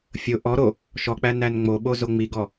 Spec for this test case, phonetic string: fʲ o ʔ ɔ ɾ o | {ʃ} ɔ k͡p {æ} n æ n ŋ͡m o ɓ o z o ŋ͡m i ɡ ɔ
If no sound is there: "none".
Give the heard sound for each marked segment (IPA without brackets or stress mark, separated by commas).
ʃ, æ